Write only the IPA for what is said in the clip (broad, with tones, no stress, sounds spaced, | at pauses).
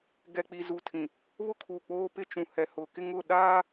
ɡ ɛ˨ k͡p i˨ z u˨ tʰ ĩ˨ | β ʊ˦ kʰ u˨ k͡p oː˦ p ɪ˦ t͡ʃ ũ˨ h ɛ˨ h ʊ˨ k ɪ˦ ŋ ʊ˦˨ ɗ aː˦